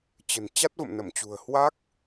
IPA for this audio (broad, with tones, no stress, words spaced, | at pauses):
t͡ɕə̤˨˩n t͡ɕa˦˥t̚və̰˧˨mnə˧˩mt͡ɕṳ˨˩ə̯ hwa˦˥k̚